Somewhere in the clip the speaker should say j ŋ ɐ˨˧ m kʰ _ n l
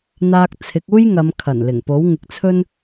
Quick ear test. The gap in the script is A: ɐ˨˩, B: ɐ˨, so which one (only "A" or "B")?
A